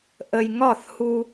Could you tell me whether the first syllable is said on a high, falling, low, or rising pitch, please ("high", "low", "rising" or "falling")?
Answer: low